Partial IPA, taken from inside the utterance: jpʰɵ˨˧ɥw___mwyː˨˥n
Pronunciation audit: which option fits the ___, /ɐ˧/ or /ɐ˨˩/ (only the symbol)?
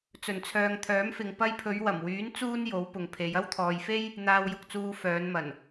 ɐ˨˩